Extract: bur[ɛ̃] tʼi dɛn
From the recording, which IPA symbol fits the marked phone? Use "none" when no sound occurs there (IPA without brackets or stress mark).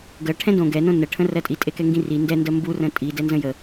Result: ə̃